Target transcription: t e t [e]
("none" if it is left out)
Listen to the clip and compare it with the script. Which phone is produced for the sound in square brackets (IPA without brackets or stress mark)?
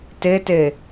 e